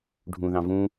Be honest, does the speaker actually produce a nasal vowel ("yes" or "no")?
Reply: yes